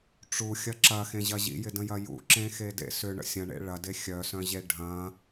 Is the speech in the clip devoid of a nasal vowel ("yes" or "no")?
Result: no